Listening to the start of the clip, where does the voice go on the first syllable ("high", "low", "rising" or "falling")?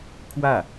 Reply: falling